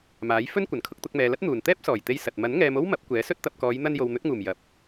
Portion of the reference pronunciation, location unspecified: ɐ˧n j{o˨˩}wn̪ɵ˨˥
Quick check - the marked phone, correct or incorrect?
incorrect